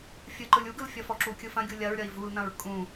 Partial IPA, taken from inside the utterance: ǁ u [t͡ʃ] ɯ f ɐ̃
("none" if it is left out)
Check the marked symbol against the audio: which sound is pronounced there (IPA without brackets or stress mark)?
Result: kʲ